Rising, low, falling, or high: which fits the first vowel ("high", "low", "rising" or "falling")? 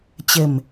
low